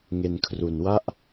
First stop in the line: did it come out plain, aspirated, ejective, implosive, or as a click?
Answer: aspirated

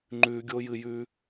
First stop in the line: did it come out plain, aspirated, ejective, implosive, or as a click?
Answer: click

